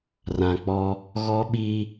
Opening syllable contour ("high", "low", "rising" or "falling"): low